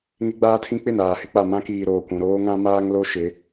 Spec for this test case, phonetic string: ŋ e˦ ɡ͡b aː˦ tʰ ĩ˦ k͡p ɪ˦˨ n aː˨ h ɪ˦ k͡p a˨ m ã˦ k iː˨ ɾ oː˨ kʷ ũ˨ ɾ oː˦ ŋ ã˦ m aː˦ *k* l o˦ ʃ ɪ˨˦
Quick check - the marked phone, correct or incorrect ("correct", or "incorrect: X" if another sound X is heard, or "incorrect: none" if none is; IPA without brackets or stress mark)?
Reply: incorrect: ŋ